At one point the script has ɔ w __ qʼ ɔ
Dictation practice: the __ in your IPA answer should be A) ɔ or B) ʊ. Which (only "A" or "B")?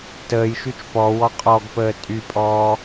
A